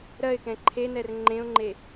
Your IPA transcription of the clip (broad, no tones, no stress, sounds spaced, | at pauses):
ɾ ɜ ɪ̯ k ɛ̃ ǃʰ e n ɛ r ŋ͡ǃ ẽ ʊ̯ ŋ͡ǃ e